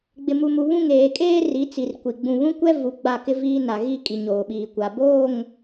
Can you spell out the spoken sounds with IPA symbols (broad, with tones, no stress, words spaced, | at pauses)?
ɡ͡bɪ˨mu˨mu˨βũ˦˨ŋ eː˨kʼeː˦ri˨˦ t͡si˨rkʷi˨ ɡ͡bũ˨βũ˦kʷɛ˦ vu˨ ɡ͡ba˦˨kɪ˦viː˦na˨ ɣi˦˨kʼi˨ ɲoː˨ɓiː˨kʷa˨ boː˦˨ŋ